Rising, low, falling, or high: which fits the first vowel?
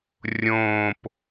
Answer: low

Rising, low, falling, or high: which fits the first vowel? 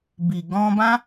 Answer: low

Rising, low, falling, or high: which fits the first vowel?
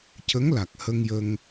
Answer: rising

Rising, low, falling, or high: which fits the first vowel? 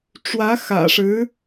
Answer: rising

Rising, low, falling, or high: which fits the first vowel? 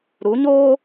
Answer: rising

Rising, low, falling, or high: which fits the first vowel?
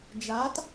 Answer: rising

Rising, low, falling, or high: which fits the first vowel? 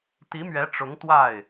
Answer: rising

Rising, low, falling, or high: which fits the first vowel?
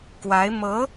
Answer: rising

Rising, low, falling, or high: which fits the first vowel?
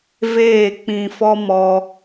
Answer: falling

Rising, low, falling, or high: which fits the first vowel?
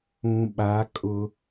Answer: low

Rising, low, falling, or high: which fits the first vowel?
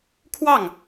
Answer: falling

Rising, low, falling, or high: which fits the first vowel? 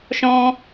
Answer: high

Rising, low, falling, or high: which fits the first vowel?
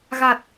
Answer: low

